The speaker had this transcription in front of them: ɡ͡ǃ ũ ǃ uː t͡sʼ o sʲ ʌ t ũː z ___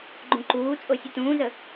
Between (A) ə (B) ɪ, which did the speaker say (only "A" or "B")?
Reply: A